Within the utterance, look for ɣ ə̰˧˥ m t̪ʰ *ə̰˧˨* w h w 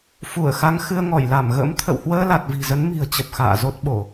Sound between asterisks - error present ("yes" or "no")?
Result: no